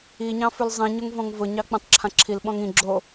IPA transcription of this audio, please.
iɲɑ̃ fʉlzˤĩɲʊŋ vɔ̃ŋvʊɲɑ k͡pẽtˤǁʰãǁʰilɓɔ̃ŋ ĩ ɡ͡ǁo

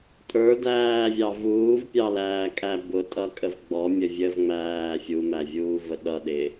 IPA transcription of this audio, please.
tʼə˞dæːvʲɑ vuːvpʲɑlæːkʼæ bʊtʼʌkʼəv ɡ͡bɔmʲə vʲəvŋ͡mæː fʲumævʲuːvə ɗʌɗɪ

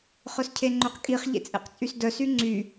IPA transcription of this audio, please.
χœscʰeŋ͡ǃøqkʼiχ ʎḛt͡sʼḛqt͡sʼysdœ syŋ͡ǀy

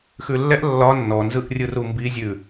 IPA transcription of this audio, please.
xʉlːɛʔ lːɒ nːɔnzɯʔrʲɯ rumbi zʲʉ

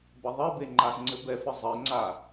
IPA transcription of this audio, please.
bɐðˤɘbe ŋ͡ǃazŋ͡ǀɘbɛfɘ zˤɘŋ͡ǀa

